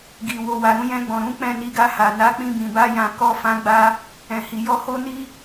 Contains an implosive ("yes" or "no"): no